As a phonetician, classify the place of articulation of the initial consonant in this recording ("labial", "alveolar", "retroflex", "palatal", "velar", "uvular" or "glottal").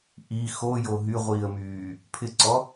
glottal